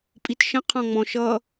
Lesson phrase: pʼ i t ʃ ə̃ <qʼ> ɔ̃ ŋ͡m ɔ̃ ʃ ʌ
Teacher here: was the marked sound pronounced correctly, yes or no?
no